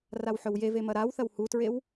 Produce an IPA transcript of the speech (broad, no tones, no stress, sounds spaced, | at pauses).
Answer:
r a w ħ ɵ w j e v e m ɐ ɾ a w θ ɐ w h u t ɹ e w